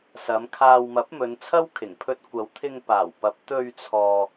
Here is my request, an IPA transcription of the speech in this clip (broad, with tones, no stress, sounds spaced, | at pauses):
s ɐ˨˧ m kʰ aː˧ w m ɐ˨˥ p̚ m ɵ˨˧ n t͡sʰ ɐ˥ w kʰ ɪ˨˩ ŋ pʰ ɵ˧ t̚ kʷ ɐ˨˧ w t̪ʰ ɪ˧ ŋ p aː˨˩ w p ɐ˨˥ p̚ t̪ ɵ˧ ɥ t͡sʰ ɔː˨